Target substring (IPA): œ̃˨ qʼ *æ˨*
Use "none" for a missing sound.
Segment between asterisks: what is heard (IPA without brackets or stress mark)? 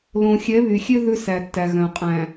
æ̃˨